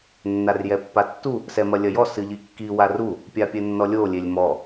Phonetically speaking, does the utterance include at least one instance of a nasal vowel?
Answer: no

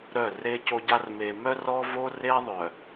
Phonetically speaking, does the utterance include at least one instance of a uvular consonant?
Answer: no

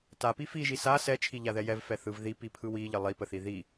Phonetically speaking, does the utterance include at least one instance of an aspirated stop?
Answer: yes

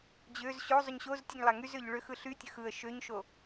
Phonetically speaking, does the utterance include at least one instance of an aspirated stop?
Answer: no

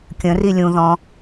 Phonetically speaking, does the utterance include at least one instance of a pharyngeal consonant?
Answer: no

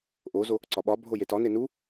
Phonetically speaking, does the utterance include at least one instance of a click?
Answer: yes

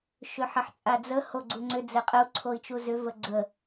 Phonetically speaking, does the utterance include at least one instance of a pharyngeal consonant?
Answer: yes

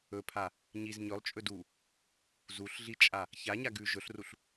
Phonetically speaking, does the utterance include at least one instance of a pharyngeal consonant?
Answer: no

